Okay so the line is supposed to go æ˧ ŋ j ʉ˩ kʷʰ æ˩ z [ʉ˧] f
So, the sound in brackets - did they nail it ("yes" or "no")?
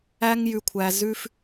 yes